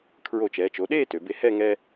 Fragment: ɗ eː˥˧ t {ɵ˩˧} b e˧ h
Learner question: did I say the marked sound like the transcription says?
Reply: no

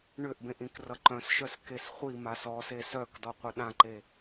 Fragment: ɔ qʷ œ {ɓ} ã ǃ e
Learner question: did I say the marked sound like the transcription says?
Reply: no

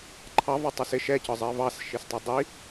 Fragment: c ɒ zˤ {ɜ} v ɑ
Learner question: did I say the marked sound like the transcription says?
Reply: yes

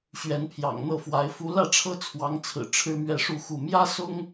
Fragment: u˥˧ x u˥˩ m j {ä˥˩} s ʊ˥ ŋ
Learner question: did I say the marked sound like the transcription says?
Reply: no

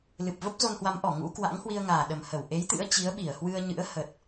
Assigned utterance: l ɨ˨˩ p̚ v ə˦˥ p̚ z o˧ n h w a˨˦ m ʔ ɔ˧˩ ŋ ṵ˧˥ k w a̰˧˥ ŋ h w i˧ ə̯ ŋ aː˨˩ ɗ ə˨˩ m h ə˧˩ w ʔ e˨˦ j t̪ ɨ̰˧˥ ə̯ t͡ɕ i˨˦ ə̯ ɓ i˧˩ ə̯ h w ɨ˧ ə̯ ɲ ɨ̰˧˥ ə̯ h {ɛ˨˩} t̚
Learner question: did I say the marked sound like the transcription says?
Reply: no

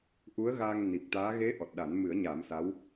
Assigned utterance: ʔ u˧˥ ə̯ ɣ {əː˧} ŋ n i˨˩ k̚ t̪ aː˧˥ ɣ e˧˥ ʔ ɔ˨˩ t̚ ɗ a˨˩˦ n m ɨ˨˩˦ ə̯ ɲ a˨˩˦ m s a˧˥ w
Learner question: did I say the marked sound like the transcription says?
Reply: no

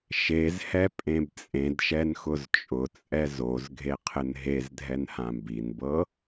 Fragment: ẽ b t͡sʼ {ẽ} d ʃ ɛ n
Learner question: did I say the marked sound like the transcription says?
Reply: yes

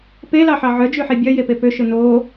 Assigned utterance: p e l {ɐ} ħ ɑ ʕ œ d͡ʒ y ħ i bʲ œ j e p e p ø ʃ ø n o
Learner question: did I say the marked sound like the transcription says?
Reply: no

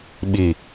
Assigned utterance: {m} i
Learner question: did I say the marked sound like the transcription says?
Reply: no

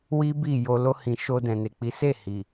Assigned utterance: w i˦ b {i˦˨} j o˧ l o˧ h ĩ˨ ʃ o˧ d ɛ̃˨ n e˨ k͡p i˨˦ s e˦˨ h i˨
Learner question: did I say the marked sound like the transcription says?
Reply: yes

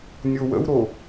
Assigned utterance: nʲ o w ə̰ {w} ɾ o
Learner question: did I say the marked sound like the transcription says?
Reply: yes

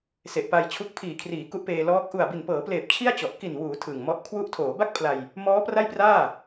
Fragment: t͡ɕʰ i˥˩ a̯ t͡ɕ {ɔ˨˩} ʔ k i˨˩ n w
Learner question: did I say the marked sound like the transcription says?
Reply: yes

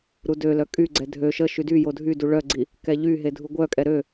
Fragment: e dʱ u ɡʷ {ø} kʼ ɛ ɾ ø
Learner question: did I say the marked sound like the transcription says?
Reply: no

